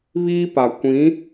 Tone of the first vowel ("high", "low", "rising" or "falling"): high